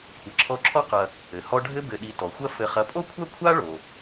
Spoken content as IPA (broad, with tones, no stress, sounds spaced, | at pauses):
kʷʰ ɘ˨ ǁʰ ɔ˦ ǁʰ ɔ˥ q ɐ˨ | ɘ˩ h ɔ˦ ɖʱ ɘ˦ b ɘ˨ ɗ i˨ t ɔ˩ xʷ ɐ˦ f ɘ˨ χ ɐ˨ pʼ o˥ kʷʰ ɐ˥ kʷʰ a˥ ɭ o˨